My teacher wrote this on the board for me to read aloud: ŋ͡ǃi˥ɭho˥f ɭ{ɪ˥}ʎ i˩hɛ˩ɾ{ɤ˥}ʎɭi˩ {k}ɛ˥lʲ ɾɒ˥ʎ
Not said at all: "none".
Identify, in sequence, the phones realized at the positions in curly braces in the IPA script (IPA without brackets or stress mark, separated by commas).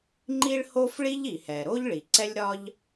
i˥, o˥, ǀ